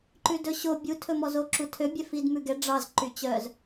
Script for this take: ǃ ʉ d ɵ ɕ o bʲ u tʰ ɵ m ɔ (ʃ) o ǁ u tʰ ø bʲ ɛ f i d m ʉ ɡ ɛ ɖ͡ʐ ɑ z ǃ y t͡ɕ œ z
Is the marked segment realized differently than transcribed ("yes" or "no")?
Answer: yes